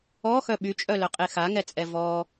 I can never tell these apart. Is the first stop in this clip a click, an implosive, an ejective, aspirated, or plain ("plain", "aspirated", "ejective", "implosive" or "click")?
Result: implosive